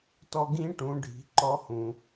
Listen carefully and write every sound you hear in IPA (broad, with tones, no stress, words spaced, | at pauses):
tɔ˧ɡĩ˧˥ʈũ˩˧ɖʱi̤˩˧ ǃɔ˧˥hũ˩